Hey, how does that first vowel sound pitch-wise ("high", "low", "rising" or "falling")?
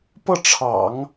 falling